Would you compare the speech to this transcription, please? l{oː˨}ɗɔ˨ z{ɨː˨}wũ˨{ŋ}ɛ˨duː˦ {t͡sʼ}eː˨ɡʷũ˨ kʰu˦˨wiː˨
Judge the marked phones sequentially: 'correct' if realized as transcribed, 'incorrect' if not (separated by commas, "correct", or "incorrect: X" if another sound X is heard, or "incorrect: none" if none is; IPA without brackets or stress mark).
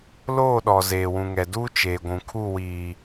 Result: incorrect: oː˦˨, incorrect: eː˨, correct, incorrect: t͡ʃ